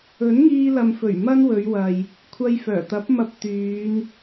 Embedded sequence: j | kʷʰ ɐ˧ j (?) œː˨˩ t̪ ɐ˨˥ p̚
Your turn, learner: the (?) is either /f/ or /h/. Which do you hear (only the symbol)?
f